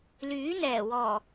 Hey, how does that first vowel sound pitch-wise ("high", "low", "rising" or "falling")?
rising